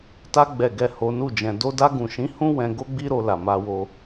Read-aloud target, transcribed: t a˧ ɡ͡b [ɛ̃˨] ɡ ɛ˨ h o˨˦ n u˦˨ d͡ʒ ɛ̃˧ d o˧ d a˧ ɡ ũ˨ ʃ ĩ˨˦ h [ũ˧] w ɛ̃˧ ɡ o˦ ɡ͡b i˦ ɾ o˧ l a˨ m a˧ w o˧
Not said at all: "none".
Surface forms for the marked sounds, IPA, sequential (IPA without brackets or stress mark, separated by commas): ɛ˨, ũ˦